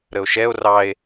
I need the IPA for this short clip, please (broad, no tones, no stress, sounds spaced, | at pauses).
ɾ ə o̯ ʃ ɛ o̯ r ɑ e̯